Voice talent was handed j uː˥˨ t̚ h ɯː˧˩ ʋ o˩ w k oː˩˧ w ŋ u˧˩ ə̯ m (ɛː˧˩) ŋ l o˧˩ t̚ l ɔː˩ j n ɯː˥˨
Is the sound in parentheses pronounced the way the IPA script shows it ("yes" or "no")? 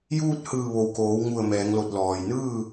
no